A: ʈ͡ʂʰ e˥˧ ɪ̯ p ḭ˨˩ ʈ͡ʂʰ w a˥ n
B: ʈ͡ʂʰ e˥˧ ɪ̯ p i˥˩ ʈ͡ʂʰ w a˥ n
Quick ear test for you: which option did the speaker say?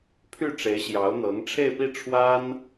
B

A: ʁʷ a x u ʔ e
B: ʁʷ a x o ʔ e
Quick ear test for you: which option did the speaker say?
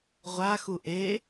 A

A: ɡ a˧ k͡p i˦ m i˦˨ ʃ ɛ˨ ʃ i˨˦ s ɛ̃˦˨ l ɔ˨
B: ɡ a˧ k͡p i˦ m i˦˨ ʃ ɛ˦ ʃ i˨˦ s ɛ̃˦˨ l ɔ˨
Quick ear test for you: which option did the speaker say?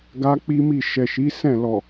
A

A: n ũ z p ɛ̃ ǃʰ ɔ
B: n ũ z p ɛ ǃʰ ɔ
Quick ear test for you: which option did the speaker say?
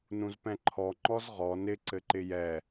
A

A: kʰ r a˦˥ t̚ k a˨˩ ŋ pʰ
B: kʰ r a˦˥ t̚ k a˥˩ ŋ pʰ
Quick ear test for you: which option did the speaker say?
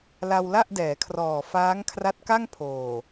B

